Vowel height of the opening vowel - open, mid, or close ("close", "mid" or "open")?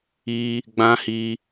close